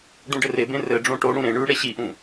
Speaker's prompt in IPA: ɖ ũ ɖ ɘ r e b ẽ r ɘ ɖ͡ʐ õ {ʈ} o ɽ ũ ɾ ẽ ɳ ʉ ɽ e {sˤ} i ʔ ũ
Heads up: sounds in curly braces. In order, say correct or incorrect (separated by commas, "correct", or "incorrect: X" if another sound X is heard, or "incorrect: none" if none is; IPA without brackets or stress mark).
correct, incorrect: ɕ